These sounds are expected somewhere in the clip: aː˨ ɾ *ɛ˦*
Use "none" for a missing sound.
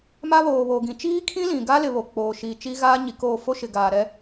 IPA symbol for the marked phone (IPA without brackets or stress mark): ɛ˦